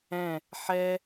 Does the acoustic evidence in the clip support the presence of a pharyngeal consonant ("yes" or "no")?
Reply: yes